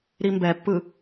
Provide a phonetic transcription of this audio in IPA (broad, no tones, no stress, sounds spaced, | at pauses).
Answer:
ɾ i m b ɛ pː ɯ